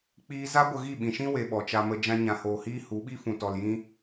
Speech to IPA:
k͡p iː˧ z a˦ ɡʷ ə˧ ɣ i˦˨ ɓ ĩ˨ ʃ ĩ˦ w e˧ ɓ ɔ˨ t͡ʃ a˧ m ə˧ d͡ʒ ã˧ ɲ ã˨ h oː˨ h iː˦ h u˨˦ ɓ i˦ f ũ˨ t ɔ˨ l j ĩ˧

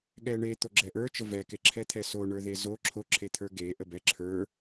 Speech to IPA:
ɠ ɛ ɳ e t̪ o ɡ͡ǁ ɛ ʔ ə˞ t͡ʃ ə v ɛ k e ǁʰ ɛ t̪ʰ ɛ s o ɳ ə˞ ð e z o ǁʰ o ǁʰ e t̪ʰ ə˞ ɡ e ʔ ə b ɛ ǁʰ ə˞

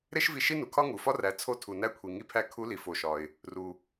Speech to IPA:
ɾ e˥ ʃ v i˧ ʃ i˥ n u˩ kʰ ɒ˥ ŋ u˩ f ɒ˥ r æ˩˧ t͡sʰ o˧ tʰ u˩ n æ˧ kʷʰ i˩ ŋ i˧ pʰ æ˧˥ kʰ u˧˥ l i˩ f o˩˧ ʃ ɒ˩ ɪ̯ | r u˩

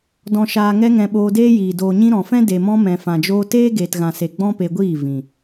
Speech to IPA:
d ɔ̃˨ ʃ aː˨ ŋ ɛ˧ ŋ ɛ̃˨ ɓ oː˧ d eː˦ j iː˨ d oː˨ ɲ ĩ˧ ɾ ɔ̃˨ f ɛ̃˦ d e˨ m ɔ̃˧ m ɛ̃˨ f ã˨ d͡ʒ oː˧ t eː˦ ɡ eː˨ t ɣ ã˨ s e˨ ɡ͡b ɔ̃˦ p e˧ ɡʷ iː˦˨ v ĩ˨

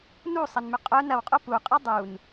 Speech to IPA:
n u sˤ ɐ n m ʏ qʼ œ n ɐ w qʼ o p u qʼ ɐ dˤ u n

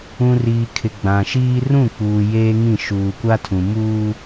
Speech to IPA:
ũ˨ r iː˨ kʰ ɪ˨ ɡ͡b ã˨ ʃ iː˦ r ũ˦˨ k͡p uː˨ j eː˦ ŋ ĩ˦˨ ʃ uː˨ kʷ a˦ tʰ ũ˨ m uː˦

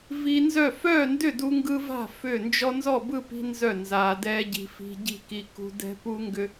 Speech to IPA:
v i˦ n z œ˥˨ f œː˥˨ n d ʏ˥˨ d u˦ ŋ ɡ ɯː˦ v a̤˥˨ f ʏ˥˨ n d͡ʒ ɔ˦ n z ɔ˥˨ b ɯ˥˨ p i̤˦ n z œ˥˨ n z aː˦ d ɛː˦ ɟ i̤˦ f i̤˦ ɟ i̤˥˨ k i˦ k ṳ˦ d ɛ̤˦ p u˦ ŋ ɡ ʏ˦

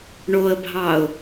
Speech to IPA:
ɳ o ə̯ bʱ ɑ ʊ̯

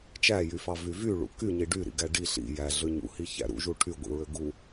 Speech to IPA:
t͡ʃ æ j y f ɑ v y v y ɭ ṵ k y ɲ i ɖ y ɾ ḭ ɡ æ ɖ i ɬ ḭ j æ ɮ ø ɲ ṵ h i ç æ̰ ɾ ṵ ʒ u ʈʰ y ɡʷ ḭ ɹ ø ɡ u

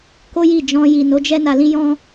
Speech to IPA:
k o˦ j i˦˨ d͡ʒ ɔ̃˧ j i˨ n o˨˦ d͡ʒ ɛ˦ n a˧ l ĩ˦ j ɔ̃˦

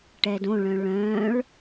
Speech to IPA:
ʈ ɛ d õ ɭ œ̃ ɭ œ̃ ɭ

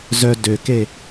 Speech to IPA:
z œ d ø k e

